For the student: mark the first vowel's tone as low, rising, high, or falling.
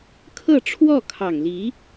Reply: falling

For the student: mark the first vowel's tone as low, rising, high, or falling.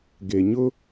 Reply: low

